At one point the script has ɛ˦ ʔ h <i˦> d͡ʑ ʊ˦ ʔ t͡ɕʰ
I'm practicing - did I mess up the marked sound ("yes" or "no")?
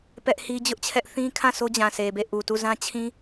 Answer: no